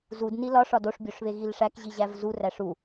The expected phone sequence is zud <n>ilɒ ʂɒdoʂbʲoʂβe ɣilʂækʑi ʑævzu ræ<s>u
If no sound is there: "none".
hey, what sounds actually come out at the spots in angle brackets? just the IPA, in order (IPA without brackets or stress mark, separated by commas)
n, ʂ